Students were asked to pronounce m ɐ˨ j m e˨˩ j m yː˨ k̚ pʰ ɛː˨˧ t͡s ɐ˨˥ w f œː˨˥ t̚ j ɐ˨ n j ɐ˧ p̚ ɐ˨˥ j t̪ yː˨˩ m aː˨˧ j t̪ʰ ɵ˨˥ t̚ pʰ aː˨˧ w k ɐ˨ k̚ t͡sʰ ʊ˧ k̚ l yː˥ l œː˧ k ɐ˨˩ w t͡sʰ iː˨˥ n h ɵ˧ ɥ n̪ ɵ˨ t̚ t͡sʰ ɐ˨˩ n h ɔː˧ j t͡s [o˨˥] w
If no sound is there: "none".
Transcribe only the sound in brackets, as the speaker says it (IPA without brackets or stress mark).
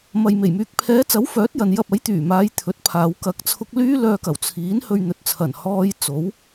o˨˥